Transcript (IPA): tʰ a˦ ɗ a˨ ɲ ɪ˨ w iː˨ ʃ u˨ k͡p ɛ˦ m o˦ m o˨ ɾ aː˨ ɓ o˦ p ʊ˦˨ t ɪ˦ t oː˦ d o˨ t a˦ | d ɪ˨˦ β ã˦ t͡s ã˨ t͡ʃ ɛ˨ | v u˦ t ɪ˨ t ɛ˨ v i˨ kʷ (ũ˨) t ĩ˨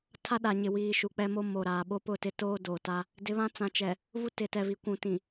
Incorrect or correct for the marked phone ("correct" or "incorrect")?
correct